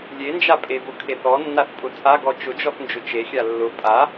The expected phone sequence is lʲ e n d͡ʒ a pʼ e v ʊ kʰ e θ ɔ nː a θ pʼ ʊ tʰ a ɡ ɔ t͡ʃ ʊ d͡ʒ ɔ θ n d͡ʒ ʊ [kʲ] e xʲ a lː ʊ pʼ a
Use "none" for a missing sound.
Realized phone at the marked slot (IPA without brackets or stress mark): t͡ʃ